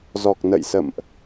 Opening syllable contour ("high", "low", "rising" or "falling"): low